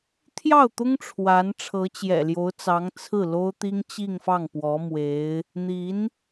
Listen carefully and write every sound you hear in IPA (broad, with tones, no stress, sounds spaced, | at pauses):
t̪ʰ j ɑ˥˩ ʊ̯ t̪ ʊ˥ ŋ ʈ͡ʂʰ w a˧˥ n ʈ͡ʂʰ ɤ˧˥ t͡ɕ j ɛ̰˨˩ l j o˧˥ ʊ̯ t͡s ɑ˧˥ ŋ t͡sʰ ɹ̩˥˩ l o˥ ʊ̯ t̪ i˥ ŋ t͡ɕ i˥˧ ŋ f ɑ˥˩ ŋ p w ɔ˧˥ m w e˧˥ ɪ̯ | n̪ i˧˥ n